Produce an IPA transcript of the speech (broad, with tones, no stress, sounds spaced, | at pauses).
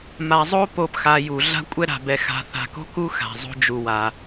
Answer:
m a˨ zˤ o˥ p o˨ p x a˨ j u˩ ɮ a̤˥ kʷʼ ɛ˥ ɾ a̤˨ b ɛ˨ x a̤˨ θ a̤˨ k o̤˥ k u˥ x a̤˩ zˤ o̤˦ d͡ʒ u˨ w a˩